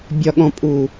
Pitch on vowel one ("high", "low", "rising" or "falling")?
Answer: low